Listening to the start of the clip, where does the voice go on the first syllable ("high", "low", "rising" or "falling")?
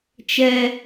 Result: low